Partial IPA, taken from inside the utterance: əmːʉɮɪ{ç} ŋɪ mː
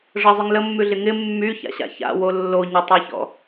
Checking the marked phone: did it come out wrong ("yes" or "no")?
yes